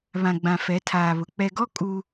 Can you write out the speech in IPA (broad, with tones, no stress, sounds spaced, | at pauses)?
β ã˨ ɡ͡b ã˨ f ɛ˨˦ tʰ aː˨ β ʊ˨ k͡p ɛ˨ ɡ ɔ˦ kʼ u˦